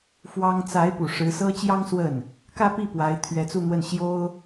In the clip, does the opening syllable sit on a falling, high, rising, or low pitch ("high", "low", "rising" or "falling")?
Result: high